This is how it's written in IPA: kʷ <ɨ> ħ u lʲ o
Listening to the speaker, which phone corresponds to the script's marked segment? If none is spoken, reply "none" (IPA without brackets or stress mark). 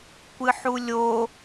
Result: ɨ